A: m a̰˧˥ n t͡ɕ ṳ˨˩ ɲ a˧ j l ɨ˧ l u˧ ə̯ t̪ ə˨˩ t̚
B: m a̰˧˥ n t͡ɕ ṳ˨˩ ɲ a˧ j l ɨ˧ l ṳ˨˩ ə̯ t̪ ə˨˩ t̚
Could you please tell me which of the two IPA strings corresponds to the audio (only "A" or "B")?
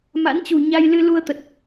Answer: A